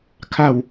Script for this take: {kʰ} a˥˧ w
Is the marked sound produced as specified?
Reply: yes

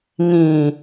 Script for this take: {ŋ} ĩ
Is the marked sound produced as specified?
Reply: yes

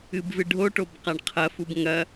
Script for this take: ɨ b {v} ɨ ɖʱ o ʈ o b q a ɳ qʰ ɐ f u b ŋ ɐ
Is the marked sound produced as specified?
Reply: yes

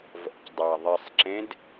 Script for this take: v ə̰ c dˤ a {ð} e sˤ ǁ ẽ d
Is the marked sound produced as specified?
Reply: no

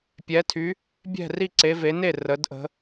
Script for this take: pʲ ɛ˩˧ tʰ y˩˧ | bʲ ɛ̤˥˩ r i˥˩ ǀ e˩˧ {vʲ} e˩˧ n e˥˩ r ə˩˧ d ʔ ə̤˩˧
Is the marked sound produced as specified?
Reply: no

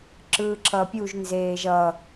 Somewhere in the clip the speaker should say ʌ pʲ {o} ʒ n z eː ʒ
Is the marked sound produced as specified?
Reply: no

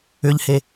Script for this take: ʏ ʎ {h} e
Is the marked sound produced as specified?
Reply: yes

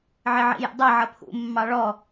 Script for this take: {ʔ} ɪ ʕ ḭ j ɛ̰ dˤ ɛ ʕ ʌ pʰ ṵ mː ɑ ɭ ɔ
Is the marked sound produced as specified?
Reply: no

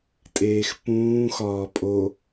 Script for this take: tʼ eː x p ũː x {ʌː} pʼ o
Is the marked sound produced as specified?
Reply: no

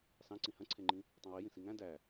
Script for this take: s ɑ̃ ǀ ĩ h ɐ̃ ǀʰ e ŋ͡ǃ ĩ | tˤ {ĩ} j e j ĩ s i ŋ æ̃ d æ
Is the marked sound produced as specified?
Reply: yes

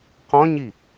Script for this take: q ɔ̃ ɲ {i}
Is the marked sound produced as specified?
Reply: yes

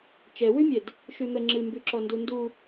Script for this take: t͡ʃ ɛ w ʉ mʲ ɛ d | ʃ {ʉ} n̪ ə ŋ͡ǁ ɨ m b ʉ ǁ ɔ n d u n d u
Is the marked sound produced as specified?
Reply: yes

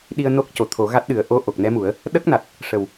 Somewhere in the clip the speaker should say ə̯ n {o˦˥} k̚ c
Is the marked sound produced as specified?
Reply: yes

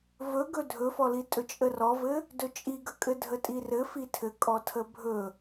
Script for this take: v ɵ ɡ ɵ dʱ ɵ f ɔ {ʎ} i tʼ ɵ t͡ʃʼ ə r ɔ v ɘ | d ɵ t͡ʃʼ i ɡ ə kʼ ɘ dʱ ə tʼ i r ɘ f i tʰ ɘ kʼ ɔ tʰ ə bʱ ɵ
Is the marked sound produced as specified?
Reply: no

